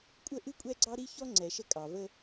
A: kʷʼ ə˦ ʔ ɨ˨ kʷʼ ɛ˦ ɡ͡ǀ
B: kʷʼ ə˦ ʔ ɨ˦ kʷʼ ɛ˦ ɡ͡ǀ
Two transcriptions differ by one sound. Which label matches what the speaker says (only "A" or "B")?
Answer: B